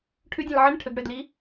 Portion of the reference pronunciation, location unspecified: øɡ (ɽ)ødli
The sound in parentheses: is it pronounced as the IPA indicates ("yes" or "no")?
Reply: yes